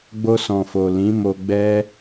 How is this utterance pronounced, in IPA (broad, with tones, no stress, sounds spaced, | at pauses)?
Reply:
ɡ͡b o˧ s ɔ̃˨ f o˨ l ĩ˨˦ m o˧ ɡ͡b ɛ˦